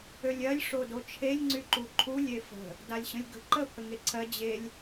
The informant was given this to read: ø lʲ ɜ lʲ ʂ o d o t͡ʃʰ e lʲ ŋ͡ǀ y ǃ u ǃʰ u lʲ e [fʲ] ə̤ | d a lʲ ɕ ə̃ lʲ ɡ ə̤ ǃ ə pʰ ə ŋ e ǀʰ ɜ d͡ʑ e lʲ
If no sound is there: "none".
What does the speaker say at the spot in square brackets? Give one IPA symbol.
f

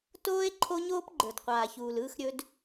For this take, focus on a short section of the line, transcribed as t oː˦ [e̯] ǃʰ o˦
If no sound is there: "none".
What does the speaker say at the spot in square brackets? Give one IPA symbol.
e̯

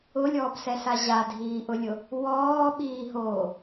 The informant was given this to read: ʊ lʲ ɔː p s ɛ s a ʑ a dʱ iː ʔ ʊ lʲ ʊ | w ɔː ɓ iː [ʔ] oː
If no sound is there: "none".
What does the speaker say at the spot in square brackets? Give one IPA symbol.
ɦ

